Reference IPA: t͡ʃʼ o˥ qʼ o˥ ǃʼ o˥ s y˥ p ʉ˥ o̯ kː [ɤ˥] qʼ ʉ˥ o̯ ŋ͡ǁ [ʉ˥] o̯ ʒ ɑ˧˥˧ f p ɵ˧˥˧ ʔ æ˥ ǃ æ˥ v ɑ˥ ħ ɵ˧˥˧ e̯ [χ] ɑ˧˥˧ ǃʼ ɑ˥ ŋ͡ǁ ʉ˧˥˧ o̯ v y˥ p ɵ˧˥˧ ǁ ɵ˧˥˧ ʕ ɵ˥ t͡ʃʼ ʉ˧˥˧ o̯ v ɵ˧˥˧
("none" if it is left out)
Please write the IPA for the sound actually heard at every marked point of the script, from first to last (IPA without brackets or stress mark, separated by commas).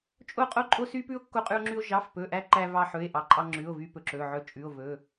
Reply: o˥, ʉ˥, ʔ